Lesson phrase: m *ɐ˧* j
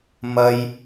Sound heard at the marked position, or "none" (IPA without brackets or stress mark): ɐ˧